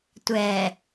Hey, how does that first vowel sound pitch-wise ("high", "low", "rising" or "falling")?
low